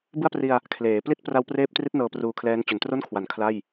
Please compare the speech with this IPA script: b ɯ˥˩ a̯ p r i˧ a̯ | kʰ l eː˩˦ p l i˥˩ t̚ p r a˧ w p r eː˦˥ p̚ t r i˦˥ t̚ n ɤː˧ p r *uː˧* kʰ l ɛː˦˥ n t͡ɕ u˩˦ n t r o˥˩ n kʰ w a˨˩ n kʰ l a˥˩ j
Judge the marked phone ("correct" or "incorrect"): correct